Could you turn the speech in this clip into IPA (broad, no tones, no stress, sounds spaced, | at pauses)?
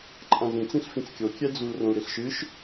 ǃʼ ã z ĩ t͡s ĩ ɬ f ĩ t͡s kʲ o kʲ ɛ d͡z u l r õ l ɾ i ɬ ʃ ɨ ʃ